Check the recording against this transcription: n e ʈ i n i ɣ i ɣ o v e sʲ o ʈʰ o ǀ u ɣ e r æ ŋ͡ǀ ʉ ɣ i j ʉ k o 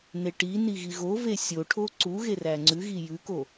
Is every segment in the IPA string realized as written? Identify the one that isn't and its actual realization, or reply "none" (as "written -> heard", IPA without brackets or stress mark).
none